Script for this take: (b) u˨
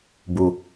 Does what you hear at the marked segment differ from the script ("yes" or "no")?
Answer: no